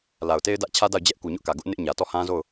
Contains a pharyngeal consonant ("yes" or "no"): no